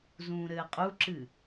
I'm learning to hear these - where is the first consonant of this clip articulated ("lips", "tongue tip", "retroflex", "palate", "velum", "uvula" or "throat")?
tongue tip